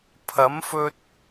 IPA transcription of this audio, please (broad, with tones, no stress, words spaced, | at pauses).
pʰɐ˨˥mfɵ˧t̚